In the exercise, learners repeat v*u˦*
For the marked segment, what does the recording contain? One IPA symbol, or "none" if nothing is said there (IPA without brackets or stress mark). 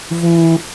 uː˦